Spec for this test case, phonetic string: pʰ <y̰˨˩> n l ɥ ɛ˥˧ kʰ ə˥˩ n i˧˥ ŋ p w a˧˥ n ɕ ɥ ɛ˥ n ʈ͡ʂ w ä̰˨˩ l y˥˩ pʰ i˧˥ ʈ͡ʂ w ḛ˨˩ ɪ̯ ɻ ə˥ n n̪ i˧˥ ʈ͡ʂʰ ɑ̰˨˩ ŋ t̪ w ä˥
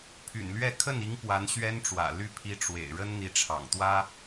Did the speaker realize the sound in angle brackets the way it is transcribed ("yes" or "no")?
yes